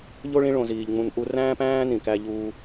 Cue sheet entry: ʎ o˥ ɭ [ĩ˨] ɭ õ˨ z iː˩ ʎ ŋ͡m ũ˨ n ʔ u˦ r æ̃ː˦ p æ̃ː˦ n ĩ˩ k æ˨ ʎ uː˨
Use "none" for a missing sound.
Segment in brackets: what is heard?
ĩ˦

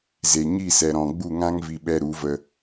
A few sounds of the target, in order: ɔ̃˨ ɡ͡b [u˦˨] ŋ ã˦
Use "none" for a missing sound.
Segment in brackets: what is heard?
u˦˨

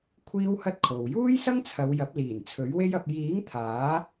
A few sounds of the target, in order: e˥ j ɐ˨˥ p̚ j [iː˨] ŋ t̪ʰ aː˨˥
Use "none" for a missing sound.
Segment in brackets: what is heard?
iː˨˥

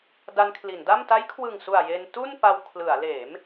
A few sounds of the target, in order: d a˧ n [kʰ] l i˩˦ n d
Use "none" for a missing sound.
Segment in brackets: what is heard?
kʰ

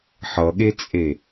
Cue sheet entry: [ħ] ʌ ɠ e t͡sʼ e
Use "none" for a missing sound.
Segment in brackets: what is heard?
ħ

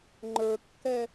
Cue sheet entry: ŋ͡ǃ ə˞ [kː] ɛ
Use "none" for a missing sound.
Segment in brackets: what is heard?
kː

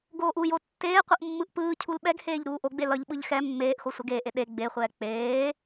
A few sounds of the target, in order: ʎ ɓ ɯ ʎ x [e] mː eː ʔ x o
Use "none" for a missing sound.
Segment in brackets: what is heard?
ɛ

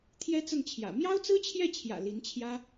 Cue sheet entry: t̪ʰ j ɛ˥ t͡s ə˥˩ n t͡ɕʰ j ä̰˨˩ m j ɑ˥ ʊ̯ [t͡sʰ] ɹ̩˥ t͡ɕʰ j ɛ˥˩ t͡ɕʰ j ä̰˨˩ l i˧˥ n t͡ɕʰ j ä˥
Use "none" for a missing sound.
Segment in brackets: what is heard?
t͡s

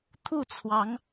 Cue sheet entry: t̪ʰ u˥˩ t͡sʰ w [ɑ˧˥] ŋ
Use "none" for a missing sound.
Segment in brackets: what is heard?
ɑ˧˥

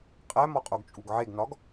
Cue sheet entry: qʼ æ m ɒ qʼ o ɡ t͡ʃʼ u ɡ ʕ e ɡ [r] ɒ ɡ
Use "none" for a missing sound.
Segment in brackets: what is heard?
n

